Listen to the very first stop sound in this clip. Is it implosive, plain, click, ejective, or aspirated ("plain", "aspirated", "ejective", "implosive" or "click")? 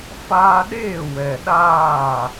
implosive